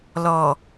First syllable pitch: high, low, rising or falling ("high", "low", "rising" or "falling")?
low